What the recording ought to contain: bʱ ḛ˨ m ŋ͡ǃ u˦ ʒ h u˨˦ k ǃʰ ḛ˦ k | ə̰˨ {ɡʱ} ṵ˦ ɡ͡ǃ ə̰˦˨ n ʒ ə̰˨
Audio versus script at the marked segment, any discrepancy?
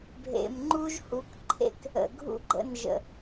no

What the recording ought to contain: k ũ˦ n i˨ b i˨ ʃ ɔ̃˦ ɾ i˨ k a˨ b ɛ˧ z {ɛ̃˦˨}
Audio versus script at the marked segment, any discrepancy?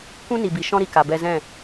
no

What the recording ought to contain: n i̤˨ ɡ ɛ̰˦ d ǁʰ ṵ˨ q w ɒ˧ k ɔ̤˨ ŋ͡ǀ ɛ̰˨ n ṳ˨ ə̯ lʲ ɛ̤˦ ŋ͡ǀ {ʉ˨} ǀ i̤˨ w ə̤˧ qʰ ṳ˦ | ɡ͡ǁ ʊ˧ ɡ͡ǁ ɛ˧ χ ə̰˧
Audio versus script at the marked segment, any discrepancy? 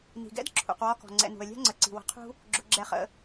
yes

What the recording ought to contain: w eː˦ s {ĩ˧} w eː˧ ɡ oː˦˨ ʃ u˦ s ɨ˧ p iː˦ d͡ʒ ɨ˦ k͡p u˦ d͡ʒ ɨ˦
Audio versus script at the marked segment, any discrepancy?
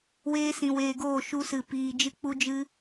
no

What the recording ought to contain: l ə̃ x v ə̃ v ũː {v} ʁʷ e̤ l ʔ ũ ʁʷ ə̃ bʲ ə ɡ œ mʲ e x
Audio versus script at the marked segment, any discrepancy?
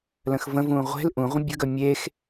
yes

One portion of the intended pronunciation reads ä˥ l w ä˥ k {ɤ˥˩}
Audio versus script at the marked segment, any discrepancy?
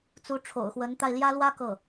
no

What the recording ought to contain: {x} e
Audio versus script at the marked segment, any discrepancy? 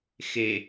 no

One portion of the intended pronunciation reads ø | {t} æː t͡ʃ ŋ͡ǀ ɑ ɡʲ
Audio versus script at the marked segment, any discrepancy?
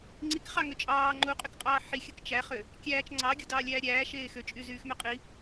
yes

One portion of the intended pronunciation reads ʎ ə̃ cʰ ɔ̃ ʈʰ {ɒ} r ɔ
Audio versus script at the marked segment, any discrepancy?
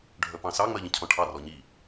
yes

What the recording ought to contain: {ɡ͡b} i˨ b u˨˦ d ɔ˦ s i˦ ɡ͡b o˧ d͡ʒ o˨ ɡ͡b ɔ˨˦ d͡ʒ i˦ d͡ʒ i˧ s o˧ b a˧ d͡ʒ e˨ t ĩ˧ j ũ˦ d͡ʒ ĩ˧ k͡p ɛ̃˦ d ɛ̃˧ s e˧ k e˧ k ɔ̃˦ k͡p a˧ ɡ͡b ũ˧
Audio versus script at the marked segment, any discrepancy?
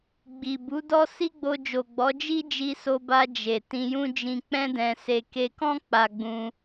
no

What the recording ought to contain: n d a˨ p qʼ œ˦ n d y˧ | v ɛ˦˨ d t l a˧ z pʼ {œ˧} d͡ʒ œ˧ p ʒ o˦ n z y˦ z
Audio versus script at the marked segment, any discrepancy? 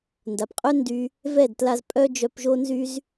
yes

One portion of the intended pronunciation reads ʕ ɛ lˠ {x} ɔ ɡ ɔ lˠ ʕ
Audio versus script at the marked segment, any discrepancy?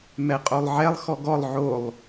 no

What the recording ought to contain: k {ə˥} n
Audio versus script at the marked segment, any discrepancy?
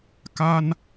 yes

